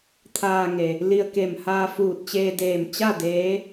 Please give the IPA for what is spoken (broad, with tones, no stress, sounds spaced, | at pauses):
t̪ʰ aː˧ ŋ e˩ | l i˧ ə̯ k e˧˩ m h aː˧ f uː˧˩ t̚ t͡ɕ eː˧ d eː˧˩ m t͡ɕ a˥˨ d eː˧˥